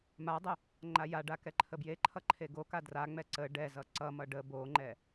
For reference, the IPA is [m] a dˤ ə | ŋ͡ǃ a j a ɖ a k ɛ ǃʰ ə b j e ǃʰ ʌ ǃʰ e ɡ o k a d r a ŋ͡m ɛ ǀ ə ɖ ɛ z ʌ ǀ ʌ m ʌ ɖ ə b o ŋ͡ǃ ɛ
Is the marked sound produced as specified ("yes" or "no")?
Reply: yes